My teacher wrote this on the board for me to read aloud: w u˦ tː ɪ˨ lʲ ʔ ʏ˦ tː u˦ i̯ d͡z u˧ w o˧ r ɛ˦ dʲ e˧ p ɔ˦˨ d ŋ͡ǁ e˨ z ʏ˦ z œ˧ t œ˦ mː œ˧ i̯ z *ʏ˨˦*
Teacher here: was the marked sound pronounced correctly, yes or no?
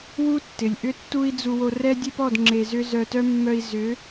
yes